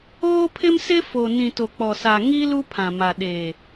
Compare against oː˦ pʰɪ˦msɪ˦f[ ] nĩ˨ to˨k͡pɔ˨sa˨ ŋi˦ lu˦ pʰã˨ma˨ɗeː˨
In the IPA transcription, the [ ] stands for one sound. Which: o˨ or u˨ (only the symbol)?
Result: o˨